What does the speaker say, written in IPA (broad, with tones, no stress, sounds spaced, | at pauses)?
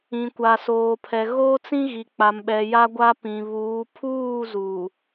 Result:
ĩ˨ kʷ a˨ s oː˨ pʰ ɛ˨ ɣ oː˦ t͡s ĩ˦ ɣ i˨ k͡p a˨ m ɓ ɛ˨ j a˦ ɡʷ a˦ p ĩ˨ β uː˨˦ pʰ uː˦˨ z uː˨